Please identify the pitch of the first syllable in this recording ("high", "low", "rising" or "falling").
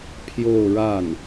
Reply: falling